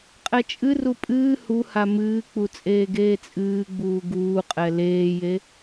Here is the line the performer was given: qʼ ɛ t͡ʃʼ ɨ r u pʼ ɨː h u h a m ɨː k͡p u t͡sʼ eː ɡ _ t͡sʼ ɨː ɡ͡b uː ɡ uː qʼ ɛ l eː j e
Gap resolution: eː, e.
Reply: eː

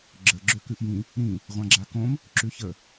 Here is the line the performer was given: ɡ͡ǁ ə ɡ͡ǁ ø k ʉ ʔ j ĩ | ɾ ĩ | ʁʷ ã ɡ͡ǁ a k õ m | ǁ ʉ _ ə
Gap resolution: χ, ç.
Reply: ç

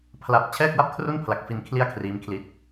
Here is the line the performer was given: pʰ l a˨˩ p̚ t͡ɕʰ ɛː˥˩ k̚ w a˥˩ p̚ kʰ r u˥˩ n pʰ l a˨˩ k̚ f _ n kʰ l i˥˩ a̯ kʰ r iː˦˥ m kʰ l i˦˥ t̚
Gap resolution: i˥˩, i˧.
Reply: i˧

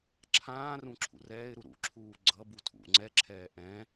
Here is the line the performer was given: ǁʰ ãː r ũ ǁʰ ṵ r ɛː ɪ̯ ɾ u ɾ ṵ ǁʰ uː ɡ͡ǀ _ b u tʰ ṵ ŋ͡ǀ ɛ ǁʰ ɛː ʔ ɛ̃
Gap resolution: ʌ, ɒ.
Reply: ʌ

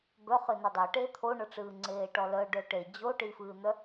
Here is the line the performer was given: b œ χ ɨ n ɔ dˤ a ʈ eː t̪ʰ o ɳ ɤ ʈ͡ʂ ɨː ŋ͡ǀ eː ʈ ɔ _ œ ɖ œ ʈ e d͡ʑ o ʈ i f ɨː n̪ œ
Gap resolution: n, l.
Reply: l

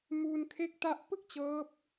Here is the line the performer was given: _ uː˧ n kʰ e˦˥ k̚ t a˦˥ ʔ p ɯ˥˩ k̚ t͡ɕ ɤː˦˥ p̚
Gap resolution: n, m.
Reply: m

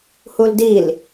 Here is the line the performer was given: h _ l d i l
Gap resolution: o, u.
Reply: u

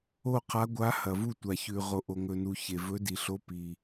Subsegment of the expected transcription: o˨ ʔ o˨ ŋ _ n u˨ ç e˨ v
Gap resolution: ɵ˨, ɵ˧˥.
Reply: ɵ˨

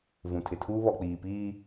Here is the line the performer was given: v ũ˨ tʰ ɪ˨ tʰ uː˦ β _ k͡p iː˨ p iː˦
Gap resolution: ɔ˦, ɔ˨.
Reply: ɔ˨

